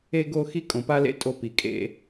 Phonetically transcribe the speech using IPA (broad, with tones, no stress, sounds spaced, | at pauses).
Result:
e˦ ɡ o˦ x i˦ kʼ õ˨ p a˦ l ḛ˦ tʼ o˦ p i˨ kʼ ḛ˦